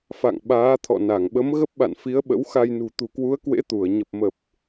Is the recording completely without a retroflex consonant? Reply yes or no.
yes